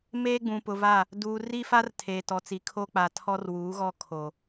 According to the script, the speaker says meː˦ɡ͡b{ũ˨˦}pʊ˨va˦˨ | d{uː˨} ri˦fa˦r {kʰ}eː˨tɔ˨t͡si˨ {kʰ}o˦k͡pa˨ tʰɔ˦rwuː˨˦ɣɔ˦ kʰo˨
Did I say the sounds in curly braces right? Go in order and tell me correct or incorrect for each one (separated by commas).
incorrect, correct, incorrect, correct